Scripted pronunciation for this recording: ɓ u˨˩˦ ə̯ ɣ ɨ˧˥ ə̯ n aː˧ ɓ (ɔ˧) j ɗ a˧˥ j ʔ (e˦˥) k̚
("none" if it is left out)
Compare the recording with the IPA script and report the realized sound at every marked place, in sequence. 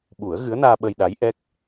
ə˧, ɛ˦˥

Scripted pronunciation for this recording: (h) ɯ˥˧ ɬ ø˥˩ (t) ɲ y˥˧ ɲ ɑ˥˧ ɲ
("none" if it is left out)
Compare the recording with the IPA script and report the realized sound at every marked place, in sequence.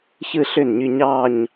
ç, n

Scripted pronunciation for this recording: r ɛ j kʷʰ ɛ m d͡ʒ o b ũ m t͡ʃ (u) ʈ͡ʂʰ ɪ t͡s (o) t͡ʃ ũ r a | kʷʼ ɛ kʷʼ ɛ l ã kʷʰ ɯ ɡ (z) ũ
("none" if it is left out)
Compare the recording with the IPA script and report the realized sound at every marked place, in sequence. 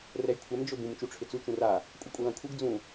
u, u, d͡z

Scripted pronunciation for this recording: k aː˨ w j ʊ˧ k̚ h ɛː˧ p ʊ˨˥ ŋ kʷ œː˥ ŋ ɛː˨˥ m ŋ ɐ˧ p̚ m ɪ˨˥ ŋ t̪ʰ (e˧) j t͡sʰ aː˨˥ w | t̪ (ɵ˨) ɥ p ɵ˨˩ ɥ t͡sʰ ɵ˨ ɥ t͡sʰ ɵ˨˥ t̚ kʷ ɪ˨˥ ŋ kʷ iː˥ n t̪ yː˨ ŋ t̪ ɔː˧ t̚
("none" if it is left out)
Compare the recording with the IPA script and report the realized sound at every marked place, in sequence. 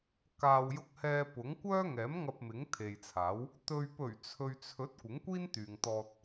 e˨, ɵ˨

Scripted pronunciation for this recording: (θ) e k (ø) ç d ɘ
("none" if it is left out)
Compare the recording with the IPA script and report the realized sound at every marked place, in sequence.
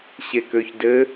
ɕ, ø

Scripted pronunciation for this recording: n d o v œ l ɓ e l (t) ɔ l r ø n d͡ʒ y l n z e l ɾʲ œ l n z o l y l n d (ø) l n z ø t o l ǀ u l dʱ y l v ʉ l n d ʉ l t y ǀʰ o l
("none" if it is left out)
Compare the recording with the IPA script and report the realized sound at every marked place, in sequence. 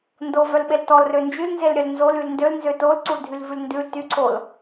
t, ø

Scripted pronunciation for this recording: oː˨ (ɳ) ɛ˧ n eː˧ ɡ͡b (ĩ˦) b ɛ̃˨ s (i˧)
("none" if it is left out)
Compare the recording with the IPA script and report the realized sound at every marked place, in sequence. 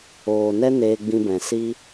n, ĩ˧, i˧

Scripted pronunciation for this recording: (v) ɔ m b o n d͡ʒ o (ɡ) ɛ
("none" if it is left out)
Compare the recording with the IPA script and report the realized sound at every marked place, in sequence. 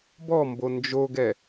b, ɡ

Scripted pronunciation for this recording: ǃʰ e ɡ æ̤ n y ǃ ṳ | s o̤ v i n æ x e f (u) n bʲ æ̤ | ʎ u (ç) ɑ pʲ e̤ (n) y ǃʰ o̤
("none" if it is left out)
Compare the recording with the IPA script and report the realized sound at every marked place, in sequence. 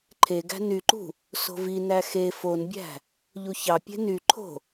o, ç, n

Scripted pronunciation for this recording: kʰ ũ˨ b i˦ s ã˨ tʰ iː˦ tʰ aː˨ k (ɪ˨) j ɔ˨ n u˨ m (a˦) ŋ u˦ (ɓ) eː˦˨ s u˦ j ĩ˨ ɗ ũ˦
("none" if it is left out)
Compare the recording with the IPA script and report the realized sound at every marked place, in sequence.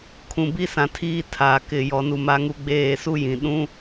ɪ˨, a˦, ɡ͡b

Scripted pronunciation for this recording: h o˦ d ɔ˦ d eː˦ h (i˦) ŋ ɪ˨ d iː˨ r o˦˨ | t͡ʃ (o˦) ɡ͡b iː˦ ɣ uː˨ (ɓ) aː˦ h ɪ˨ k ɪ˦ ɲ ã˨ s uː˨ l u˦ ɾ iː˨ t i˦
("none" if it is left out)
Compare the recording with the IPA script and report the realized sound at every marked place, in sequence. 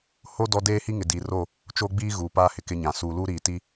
i˦, o˦, p

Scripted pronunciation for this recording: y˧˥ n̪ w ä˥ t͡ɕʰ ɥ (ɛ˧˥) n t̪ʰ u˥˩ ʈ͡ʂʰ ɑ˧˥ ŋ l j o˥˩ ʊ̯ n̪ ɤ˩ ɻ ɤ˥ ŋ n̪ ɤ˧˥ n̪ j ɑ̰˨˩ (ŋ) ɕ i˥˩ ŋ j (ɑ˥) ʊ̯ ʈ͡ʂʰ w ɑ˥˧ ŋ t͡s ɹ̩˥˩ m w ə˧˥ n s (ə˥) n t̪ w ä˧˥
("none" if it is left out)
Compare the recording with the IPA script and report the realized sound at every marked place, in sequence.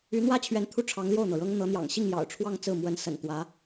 ɛ˧˥, ŋ, ɑ̰˨˩, ə̰˨˩

